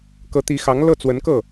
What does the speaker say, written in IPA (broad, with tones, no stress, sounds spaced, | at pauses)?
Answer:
k ɤ˧˥ t̪ i˧˥ x ɑ˧˥ ŋ l ɤ˥˩ t͡s w ə˧˥ n k ɤ˥˩